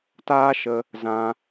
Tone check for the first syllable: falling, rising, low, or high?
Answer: high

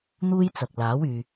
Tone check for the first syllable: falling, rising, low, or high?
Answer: high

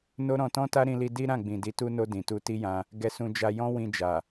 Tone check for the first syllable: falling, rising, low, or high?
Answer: high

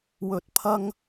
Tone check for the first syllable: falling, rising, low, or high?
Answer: rising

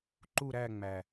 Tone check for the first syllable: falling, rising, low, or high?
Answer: falling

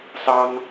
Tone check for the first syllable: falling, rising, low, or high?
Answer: high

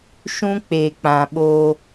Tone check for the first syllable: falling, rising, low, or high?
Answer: high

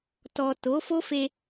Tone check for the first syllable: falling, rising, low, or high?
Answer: low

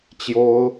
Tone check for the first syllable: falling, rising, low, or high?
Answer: high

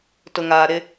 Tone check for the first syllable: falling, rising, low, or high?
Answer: low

